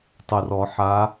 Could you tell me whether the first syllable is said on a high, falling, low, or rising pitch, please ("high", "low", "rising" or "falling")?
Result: low